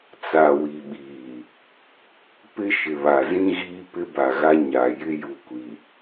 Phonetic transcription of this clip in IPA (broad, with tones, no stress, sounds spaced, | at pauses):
t͡s a˨ w i˨ ɓ iː˨ | p ɪ˦ ʃ ɪ˨ β a˨ z ĩ˦ ɣ iː˦ p ɪ˦ b a˨ ɣ a˦ ɲ a˨ j ɪ˦ j u˦ kʷ i˨